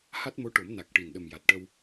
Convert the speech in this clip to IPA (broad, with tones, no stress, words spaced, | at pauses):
ha˦˥t̚mo˧˥ʈo˨˩˦m na˨˩k̚ʈi˨˩n ɗə˨˩m ja˨˩t̚ʈə˧w